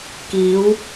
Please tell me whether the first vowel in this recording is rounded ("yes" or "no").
no